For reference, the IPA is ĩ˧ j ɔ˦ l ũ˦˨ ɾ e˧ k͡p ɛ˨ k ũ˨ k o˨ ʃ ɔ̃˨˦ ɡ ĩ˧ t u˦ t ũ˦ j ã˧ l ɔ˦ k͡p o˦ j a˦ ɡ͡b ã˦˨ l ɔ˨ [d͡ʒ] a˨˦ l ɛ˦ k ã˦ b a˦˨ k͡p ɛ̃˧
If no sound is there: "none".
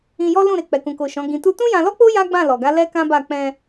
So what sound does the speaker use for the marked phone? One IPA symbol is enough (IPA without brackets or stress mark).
ɡ